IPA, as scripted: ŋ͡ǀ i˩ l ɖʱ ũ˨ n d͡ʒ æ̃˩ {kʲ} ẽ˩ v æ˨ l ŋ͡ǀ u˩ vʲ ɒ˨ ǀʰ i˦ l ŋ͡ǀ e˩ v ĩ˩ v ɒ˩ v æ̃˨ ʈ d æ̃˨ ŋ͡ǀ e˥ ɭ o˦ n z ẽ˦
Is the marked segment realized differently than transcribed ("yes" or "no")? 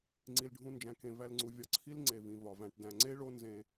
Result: yes